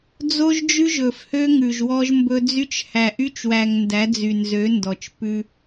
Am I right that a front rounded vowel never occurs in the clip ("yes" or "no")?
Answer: no